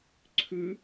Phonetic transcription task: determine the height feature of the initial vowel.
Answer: high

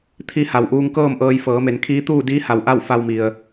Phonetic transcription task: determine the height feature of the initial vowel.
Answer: high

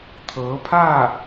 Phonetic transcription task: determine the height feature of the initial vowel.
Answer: mid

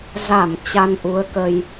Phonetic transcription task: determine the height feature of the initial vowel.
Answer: low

